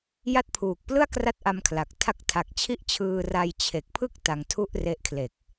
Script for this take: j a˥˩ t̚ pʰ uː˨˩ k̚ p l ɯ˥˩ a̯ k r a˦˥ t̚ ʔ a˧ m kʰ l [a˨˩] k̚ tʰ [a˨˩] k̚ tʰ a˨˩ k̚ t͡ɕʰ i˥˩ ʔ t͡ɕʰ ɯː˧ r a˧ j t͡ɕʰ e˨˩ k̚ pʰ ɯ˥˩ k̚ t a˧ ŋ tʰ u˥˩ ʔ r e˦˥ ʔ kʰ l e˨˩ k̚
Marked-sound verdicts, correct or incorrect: correct, incorrect: a˦˥

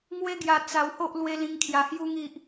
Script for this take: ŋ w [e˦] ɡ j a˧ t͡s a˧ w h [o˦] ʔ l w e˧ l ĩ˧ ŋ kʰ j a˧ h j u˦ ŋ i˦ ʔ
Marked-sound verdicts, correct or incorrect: correct, correct

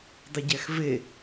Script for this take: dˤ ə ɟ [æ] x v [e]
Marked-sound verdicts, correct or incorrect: correct, correct

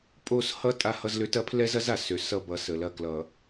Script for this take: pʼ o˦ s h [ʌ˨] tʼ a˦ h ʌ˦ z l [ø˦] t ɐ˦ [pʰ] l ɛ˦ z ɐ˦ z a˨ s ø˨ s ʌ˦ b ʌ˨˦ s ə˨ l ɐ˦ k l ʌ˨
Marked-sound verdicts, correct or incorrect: incorrect: ʌ˦, correct, correct

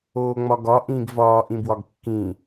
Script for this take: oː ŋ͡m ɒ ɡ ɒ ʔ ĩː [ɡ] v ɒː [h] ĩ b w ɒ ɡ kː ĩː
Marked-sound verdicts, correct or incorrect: correct, incorrect: ʔ

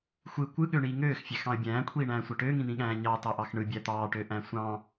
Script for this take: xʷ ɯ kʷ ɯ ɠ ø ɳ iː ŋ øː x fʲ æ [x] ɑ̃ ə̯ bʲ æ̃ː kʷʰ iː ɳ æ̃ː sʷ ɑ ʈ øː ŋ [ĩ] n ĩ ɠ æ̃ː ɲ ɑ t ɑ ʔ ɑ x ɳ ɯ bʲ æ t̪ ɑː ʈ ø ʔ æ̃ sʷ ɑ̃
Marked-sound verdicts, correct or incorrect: correct, correct

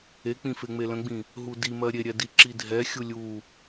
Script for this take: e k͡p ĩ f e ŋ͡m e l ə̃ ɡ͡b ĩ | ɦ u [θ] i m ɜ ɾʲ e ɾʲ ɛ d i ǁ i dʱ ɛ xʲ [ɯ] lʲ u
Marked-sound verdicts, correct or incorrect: incorrect: d, incorrect: u

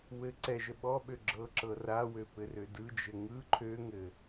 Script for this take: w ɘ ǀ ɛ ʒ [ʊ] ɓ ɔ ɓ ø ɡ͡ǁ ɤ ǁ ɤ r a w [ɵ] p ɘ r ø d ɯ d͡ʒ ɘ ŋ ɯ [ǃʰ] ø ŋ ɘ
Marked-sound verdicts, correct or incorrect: incorrect: ə, incorrect: ø, correct

